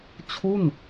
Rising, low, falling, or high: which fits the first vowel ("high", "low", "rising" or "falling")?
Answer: falling